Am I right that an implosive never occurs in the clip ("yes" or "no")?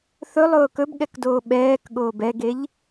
no